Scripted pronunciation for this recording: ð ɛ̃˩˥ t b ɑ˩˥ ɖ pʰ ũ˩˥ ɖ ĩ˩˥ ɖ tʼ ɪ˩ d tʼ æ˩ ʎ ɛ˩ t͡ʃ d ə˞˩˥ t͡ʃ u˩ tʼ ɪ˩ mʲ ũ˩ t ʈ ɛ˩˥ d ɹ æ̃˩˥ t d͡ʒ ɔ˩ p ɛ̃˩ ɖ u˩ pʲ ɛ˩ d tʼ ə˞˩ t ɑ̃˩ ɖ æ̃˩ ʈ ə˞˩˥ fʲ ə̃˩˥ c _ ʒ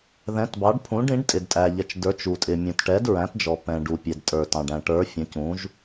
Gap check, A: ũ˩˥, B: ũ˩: A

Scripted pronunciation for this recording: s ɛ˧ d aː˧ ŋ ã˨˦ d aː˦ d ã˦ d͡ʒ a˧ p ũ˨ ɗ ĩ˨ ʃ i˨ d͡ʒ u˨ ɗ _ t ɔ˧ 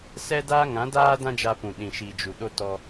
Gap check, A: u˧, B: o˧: B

